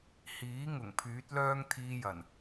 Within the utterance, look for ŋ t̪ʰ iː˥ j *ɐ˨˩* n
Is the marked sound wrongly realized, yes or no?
no